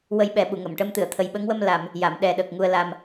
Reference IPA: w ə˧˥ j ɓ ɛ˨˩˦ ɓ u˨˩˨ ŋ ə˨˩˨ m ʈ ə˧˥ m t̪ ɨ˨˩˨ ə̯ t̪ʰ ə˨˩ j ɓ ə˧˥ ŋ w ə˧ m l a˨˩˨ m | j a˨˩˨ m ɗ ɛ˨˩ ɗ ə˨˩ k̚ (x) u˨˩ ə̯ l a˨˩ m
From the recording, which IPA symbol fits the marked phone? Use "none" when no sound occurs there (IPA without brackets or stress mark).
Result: ŋ